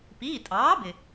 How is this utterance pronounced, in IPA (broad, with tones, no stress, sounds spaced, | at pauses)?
p iː˩˧˩ tʼ ɑː˩˥ b ɪ˩